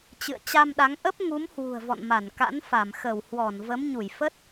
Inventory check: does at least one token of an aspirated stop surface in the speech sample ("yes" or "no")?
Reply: no